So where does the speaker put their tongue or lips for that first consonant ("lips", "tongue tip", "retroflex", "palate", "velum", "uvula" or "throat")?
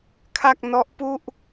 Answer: velum